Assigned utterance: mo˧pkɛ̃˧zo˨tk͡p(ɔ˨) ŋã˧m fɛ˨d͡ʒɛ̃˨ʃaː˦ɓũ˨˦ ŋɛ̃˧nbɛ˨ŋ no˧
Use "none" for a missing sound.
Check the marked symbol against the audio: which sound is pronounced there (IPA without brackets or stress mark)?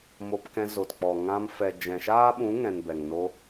ɔ˨